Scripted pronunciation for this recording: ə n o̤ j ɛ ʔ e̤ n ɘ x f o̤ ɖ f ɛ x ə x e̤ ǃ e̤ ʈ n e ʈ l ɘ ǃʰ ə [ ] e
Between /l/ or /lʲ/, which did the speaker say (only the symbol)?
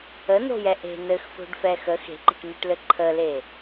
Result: l